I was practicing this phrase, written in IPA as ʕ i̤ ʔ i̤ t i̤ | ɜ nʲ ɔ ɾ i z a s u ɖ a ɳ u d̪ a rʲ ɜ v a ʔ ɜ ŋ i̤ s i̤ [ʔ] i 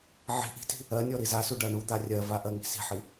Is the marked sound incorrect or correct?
incorrect